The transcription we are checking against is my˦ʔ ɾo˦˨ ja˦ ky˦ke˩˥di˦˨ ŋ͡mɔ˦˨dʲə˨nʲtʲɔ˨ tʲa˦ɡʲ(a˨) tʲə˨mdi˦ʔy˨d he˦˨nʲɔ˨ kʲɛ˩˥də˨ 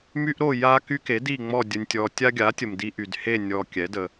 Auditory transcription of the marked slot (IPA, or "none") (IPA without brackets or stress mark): a˩˥